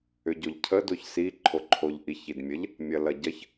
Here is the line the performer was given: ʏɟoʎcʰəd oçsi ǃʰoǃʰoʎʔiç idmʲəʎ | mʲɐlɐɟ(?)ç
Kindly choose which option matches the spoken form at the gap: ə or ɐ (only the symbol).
ɐ